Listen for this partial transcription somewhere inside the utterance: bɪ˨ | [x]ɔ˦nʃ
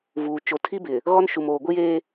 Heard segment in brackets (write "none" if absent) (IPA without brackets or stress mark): ɣ